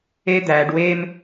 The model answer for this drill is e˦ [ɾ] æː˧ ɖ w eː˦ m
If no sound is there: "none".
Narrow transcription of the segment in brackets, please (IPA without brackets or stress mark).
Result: d̪